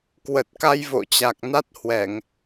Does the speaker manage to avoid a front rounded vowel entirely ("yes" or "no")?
yes